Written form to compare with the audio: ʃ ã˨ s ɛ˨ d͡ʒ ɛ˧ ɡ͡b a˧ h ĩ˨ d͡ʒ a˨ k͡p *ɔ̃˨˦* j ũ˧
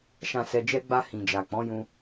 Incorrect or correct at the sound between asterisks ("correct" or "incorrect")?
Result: correct